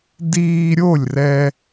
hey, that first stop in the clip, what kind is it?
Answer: plain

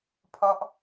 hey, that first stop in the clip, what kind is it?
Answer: aspirated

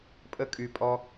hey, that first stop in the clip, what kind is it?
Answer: ejective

